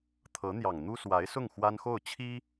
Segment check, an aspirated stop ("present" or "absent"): present